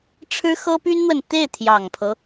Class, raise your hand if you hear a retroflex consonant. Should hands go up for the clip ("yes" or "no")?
yes